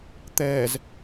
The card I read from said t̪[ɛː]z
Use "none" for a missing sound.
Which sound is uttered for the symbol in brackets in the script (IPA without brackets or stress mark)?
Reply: ɛː